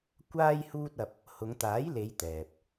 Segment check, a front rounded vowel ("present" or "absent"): absent